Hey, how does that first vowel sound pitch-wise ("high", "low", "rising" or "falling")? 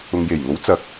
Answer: low